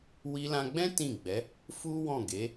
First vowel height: high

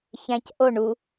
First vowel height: low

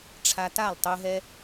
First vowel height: low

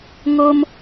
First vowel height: mid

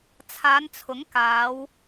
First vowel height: low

